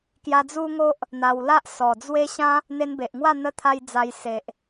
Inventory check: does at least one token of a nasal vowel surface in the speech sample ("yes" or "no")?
yes